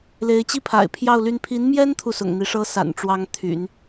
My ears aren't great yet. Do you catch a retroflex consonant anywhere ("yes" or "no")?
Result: yes